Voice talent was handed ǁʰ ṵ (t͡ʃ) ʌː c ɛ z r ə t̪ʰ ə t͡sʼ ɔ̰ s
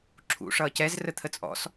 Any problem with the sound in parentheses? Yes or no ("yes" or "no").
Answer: yes